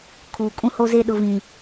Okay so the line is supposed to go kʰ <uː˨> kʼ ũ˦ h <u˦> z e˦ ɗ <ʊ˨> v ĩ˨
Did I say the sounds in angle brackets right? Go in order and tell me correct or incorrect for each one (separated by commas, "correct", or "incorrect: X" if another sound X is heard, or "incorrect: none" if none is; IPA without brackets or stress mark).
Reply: correct, incorrect: o˦, correct